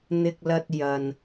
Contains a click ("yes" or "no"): no